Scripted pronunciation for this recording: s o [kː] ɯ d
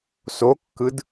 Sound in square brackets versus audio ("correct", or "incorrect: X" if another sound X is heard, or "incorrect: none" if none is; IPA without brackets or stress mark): correct